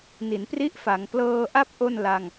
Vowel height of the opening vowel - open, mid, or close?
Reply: close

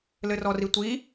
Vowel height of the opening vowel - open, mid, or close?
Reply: mid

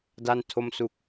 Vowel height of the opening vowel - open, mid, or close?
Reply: open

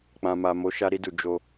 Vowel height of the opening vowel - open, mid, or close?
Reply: open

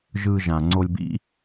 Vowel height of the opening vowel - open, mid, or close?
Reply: close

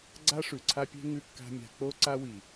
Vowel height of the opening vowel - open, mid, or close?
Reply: open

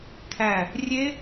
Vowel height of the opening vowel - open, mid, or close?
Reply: open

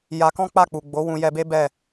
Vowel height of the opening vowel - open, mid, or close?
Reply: open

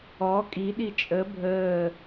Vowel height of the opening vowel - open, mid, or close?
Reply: mid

